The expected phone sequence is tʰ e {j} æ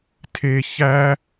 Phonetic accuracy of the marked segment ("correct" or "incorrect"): incorrect